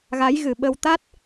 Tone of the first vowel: rising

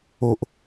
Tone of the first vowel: low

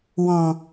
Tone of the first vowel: low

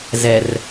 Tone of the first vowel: low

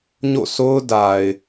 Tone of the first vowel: falling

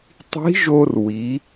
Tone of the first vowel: rising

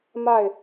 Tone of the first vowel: falling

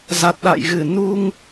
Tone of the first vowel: low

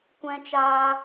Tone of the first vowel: high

